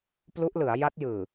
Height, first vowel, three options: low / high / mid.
high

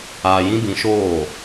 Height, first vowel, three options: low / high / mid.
low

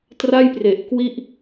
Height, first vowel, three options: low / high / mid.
low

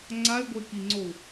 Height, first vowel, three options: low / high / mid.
low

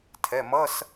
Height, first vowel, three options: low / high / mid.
mid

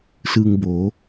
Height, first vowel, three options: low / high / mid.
high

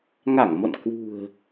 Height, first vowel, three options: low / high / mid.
low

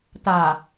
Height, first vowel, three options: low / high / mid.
low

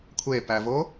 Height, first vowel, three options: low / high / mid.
mid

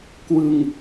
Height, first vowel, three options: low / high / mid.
high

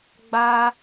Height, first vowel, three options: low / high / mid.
low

